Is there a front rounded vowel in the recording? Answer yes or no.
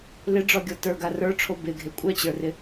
yes